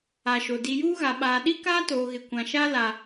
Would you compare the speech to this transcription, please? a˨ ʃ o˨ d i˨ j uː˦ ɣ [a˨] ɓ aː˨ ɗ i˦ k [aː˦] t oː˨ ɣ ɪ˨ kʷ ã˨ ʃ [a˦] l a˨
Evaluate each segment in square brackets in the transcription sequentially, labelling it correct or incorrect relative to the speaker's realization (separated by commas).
correct, correct, correct